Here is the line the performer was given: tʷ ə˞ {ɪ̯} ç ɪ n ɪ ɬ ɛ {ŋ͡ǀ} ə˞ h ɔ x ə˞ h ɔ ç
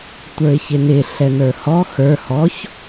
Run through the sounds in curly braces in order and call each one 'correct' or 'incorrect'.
correct, incorrect

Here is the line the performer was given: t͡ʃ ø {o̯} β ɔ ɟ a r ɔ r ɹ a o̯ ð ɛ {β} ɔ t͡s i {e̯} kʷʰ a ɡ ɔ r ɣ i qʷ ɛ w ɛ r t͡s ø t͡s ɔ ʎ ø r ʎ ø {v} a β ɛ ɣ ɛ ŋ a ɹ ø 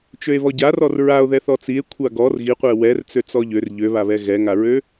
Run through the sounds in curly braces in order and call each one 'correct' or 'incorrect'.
incorrect, incorrect, correct, incorrect

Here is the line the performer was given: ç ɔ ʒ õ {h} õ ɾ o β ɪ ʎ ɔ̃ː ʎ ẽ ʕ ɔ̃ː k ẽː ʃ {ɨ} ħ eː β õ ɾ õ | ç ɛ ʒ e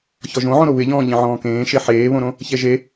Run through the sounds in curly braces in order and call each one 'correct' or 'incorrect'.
incorrect, incorrect

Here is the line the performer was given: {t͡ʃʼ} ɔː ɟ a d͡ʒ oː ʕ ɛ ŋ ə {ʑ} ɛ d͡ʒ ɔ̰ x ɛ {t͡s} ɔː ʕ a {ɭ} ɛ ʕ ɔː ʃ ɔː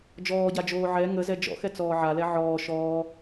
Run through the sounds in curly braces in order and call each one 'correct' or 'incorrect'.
incorrect, incorrect, correct, incorrect

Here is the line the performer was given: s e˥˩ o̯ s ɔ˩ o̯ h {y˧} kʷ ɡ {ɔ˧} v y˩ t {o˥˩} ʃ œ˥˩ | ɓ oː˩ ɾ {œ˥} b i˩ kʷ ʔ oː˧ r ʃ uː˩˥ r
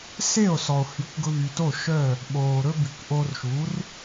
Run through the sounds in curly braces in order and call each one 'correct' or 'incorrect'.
incorrect, incorrect, correct, incorrect

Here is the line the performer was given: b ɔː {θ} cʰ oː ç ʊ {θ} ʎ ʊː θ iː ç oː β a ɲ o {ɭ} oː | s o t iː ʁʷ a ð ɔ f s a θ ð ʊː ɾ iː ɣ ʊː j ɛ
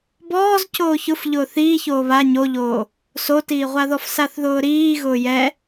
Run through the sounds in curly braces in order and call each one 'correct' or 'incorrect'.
incorrect, incorrect, incorrect

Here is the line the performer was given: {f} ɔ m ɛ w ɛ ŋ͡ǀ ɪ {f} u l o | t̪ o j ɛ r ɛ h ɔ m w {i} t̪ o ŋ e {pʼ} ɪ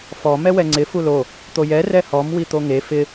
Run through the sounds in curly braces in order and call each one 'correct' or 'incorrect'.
correct, correct, correct, incorrect

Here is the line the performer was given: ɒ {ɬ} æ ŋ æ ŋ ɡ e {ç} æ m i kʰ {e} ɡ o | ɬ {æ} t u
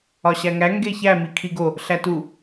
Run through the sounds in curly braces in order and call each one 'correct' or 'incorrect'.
incorrect, correct, incorrect, correct

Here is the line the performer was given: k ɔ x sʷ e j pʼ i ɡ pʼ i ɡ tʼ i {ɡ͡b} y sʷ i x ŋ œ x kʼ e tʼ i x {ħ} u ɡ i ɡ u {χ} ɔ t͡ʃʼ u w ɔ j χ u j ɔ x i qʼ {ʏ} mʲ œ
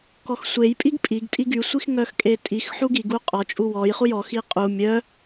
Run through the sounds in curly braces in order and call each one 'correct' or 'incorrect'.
incorrect, correct, incorrect, incorrect

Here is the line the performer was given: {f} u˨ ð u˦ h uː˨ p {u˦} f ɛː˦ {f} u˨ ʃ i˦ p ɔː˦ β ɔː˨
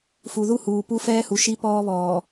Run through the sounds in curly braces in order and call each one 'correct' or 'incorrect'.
correct, correct, incorrect

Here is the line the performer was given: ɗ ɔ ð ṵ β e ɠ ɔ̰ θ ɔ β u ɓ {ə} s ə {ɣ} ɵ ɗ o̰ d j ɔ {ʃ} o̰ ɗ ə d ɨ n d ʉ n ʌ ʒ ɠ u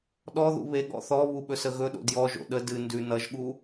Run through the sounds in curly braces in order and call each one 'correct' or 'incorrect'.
incorrect, correct, incorrect

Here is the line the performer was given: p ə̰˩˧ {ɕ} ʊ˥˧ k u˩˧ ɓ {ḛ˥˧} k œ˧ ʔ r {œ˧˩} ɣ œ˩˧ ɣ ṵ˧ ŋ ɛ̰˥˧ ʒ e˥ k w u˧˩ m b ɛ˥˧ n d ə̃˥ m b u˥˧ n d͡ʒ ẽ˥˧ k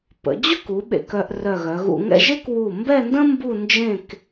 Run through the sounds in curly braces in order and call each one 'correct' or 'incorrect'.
incorrect, incorrect, correct

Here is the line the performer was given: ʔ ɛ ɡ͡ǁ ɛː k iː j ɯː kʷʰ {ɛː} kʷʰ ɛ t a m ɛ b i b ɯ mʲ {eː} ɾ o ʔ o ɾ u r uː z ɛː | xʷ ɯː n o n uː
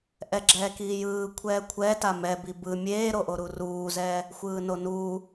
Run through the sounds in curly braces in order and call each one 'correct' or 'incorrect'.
correct, correct

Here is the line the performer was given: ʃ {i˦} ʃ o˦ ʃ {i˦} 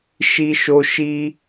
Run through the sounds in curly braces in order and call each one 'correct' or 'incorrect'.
correct, correct

